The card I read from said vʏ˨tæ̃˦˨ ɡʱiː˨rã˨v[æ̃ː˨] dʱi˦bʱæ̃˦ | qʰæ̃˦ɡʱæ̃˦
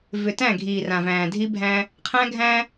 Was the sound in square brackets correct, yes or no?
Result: yes